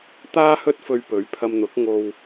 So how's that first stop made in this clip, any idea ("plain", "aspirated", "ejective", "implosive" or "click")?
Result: plain